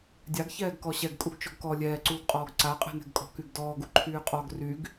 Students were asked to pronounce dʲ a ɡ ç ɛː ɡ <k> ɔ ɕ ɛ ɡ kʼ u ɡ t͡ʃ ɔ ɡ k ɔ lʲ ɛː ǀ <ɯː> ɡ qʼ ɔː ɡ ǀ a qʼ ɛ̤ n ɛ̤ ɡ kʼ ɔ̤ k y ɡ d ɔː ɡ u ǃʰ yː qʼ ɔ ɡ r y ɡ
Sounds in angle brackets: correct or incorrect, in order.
correct, incorrect: uː

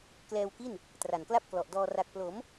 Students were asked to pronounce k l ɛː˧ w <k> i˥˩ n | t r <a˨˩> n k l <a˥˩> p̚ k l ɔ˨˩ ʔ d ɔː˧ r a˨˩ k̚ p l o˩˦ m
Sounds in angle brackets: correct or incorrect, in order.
correct, correct, correct

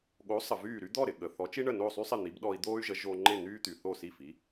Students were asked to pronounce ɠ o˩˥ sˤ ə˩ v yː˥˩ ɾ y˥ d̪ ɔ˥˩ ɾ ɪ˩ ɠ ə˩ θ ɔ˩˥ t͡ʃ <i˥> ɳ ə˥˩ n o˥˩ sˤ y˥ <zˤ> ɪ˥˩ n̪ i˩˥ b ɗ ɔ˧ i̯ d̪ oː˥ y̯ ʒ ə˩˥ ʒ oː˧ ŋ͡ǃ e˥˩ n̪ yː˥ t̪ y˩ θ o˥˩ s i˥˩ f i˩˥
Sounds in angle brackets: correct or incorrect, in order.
correct, incorrect: sˤ

